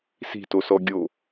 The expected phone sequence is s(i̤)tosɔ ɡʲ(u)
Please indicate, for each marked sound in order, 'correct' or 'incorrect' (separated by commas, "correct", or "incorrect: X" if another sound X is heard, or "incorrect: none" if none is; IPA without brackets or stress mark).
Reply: correct, incorrect: o